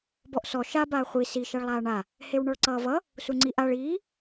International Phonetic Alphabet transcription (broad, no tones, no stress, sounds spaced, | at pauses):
b ɔ ʔ s ɔ ʃ a b aː χʷ i s i ʃ a ɭ lˠ aː ɳ a | h e w ɳ ɔ ɭ ǀ ʌː v ʌ | s u ŋ͡ǀ i ʔ a ɭ iː